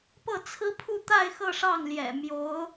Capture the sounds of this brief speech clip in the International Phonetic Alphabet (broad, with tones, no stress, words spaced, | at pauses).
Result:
pɤ˥˩t͡sʰɹ̩˥pʰu˥˧t̪a˥˧ɪ̯ xɤ˥˧ʂɑ˥˩ŋljɛ̰˨˩ mjo˧˥ʊ̯